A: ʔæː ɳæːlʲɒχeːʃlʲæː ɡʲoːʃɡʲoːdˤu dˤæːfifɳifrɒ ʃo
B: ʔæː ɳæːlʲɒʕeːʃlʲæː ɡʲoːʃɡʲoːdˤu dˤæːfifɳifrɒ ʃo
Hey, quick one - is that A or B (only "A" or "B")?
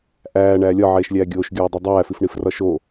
B